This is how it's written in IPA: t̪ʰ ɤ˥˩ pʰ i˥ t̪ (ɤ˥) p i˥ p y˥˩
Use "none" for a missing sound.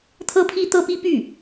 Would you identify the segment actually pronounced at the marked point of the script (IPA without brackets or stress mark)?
ɤ˥